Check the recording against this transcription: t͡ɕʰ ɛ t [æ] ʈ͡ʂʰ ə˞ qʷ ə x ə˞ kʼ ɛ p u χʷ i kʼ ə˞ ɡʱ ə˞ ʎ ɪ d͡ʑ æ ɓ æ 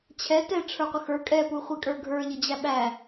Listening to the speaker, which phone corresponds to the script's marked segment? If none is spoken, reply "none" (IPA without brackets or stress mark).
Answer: ɛ